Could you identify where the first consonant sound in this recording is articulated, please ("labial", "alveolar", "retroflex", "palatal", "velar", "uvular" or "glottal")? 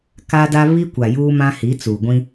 velar